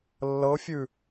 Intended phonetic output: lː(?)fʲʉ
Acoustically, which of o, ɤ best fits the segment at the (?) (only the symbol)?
ɤ